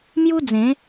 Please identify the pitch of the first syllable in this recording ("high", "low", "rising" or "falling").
high